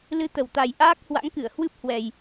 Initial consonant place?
alveolar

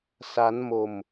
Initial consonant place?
alveolar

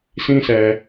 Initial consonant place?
alveolar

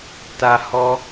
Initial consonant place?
alveolar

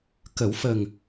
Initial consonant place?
velar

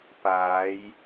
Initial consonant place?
labial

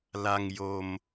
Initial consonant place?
alveolar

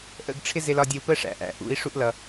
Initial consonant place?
glottal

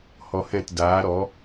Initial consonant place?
glottal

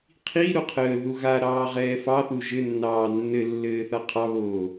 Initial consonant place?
uvular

